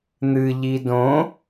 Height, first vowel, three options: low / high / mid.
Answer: high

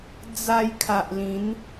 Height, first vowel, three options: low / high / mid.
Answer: low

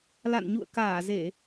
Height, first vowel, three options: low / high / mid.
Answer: low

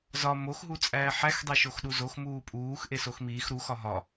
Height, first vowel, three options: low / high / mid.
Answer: low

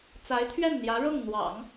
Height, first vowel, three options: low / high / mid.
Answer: low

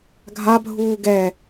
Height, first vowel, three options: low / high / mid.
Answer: low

